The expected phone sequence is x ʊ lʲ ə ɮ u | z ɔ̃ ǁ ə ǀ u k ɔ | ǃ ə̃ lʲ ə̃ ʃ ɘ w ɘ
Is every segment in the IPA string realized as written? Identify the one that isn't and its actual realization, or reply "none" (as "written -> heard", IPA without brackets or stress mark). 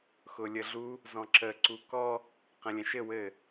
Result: ǃ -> q